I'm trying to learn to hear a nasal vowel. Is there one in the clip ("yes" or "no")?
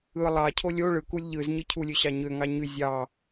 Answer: no